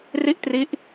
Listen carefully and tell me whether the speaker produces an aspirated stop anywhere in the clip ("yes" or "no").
no